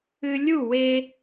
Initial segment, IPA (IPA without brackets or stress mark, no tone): ɨ